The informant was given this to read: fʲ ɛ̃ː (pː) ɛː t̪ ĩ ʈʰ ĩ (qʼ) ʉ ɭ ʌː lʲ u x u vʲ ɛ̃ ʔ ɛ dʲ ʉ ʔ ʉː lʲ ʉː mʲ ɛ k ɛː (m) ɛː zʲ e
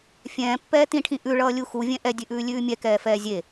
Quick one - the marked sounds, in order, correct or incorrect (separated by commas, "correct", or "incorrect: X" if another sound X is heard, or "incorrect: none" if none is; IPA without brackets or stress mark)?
correct, incorrect: ʔ, incorrect: f